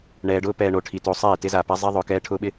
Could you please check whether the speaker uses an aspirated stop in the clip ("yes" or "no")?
yes